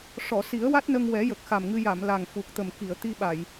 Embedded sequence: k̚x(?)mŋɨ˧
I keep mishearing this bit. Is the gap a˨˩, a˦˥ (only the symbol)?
a˨˩